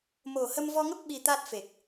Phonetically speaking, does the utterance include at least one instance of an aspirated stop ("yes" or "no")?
no